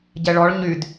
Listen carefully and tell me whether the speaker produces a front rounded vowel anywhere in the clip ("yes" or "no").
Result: yes